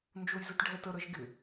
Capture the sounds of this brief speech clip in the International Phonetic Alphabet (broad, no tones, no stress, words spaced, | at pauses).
nd͡ʒojzɘtɖʱɛtə ɾəʒɡɪ